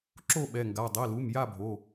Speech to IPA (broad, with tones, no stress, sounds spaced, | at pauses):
ǁ o˥˨ ɓ ɛ˩˧˩ ŋ ɡ a˩˧˩ dˤ i˩˧˩ l u˩˧˩ m j a˥˨ bʱ o˩˧˩